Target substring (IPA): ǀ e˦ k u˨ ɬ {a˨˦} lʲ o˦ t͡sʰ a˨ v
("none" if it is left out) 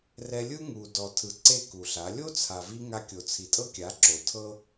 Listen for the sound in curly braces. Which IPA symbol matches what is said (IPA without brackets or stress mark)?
a˨˦